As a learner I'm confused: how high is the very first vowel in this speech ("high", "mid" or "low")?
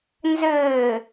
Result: mid